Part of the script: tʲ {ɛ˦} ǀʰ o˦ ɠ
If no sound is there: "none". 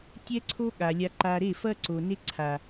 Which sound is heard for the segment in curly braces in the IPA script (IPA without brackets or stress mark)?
ɛ˦